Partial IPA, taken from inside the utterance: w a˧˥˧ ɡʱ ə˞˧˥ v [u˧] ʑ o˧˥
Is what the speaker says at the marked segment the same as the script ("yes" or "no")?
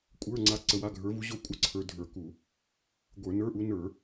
no